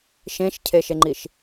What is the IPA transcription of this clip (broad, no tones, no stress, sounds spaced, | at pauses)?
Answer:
ʃ ẽ ʃ cʰ e ʃ e ŋ͡ǃ i ʃ